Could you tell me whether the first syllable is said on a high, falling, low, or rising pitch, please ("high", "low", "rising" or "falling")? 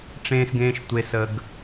low